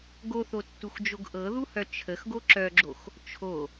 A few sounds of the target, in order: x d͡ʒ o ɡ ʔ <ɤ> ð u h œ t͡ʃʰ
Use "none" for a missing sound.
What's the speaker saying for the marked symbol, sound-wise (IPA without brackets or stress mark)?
ɤ